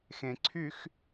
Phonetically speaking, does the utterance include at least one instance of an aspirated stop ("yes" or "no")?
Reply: yes